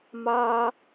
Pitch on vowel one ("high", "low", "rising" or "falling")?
high